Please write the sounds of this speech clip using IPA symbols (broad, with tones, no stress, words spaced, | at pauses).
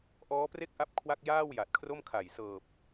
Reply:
ʔɔː˦˥pre˥˩k̚ʔa˦˥p̚ kʰwa˥˩k̚jaː˥˩w ja˨˩t̚kʰro˥˩mkʰa˨˩j sɤː˨˩p̚